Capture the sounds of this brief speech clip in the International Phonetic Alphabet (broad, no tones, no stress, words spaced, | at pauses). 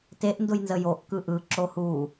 teʔndʊjnzə joʔkɯ ʔɯǁo hu